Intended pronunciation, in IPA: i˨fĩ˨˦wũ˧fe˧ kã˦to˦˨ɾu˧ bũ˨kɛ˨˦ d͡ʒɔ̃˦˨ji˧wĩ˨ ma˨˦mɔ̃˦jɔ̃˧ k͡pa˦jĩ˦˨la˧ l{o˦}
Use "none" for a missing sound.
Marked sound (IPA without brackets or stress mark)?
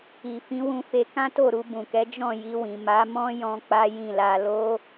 o˦